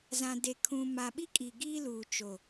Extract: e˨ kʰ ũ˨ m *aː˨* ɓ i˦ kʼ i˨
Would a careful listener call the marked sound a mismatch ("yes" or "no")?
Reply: yes